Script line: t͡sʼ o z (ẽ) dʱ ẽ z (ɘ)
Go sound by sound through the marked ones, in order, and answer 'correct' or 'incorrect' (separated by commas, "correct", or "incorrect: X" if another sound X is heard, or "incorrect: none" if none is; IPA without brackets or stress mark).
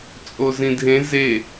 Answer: incorrect: ĩ, incorrect: e